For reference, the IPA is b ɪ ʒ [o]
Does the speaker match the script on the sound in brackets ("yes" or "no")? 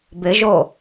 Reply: yes